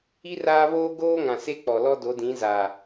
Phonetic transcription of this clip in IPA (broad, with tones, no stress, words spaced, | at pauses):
i˦ raː˦βoː˦ɡoː˦ŋã˨ se˦k͡pɔ˨lɔ˦ do˨˦dĩ˨˦za˨